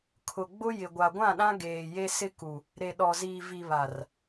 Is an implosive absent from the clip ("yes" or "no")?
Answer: no